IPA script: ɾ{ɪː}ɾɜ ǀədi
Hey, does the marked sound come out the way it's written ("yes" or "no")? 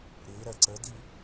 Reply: yes